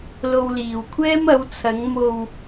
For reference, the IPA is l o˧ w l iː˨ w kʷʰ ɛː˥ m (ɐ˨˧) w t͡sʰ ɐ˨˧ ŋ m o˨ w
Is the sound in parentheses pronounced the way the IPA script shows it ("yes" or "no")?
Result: yes